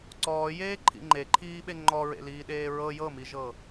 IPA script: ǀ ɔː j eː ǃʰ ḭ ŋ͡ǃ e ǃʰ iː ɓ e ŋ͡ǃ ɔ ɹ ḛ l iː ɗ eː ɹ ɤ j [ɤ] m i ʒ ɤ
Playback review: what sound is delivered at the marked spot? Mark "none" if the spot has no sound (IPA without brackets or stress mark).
ɤ